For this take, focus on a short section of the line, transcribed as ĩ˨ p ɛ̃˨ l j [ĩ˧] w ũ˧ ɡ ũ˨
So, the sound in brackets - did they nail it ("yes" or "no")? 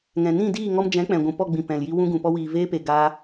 no